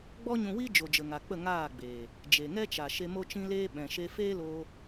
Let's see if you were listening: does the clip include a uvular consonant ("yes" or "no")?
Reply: no